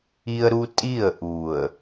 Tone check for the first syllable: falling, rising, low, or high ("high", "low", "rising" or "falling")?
high